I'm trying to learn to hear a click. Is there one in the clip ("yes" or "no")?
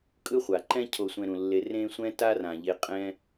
yes